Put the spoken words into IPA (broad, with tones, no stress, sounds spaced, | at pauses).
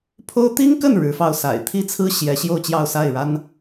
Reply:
pʰ o˥ ʊ̯ t̪ i˥ ŋ k ə˥˩ n ɻ ɻ̩˧˥ f ɑ˥˩ ʊ̯ s a̰˨˩ ɪ̯ t̪ʰ i˥ t͡sʰ ɹ̩˥ ɕ j ɛ˧˥ ɕ j o˥˧ ʊ̯ t͡ɕ j ɑ˥˧ ʊ̯ s a˥˩ ɪ̯ ɻ a˥ n